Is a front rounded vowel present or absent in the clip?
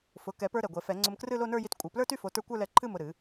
present